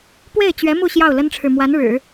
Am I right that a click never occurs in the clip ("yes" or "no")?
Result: yes